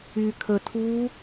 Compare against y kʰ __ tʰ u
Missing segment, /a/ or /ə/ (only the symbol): ə